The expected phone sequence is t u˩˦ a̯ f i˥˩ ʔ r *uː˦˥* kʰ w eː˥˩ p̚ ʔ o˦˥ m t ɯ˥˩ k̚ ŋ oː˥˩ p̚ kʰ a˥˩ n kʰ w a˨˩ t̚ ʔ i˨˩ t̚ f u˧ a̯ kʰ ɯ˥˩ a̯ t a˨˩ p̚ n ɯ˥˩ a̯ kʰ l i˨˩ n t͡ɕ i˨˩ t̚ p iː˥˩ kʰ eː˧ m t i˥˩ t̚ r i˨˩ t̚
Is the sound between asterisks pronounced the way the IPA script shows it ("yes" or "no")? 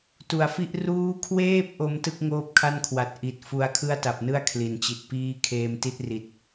yes